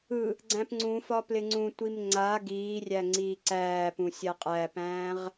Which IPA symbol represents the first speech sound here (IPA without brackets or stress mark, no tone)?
ɯ